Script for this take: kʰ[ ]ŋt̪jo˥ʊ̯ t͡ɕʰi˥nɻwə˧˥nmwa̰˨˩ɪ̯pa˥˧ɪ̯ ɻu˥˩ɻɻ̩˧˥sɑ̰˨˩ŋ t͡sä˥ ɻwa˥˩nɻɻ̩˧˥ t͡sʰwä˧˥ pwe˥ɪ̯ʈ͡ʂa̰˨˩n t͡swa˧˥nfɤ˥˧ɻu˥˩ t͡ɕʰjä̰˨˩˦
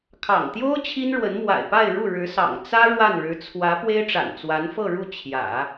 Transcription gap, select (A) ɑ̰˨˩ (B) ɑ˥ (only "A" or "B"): A